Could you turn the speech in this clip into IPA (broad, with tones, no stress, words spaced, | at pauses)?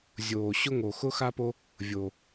zʲoː˧ɕʊ˦ŋo˧ xʊ˦xa˦po˦ | vʲo˧